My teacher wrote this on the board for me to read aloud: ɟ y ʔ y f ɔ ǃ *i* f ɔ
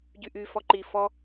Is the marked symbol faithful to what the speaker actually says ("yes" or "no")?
yes